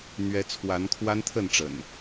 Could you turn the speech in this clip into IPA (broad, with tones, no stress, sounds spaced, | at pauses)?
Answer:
n̪ ɥ ɛ˦ t͡sʰ w a˨˦ n kʰ w a˦ n t̪ʰ ə˥˨ n ʈ͡ʂ ə̰˨˩ n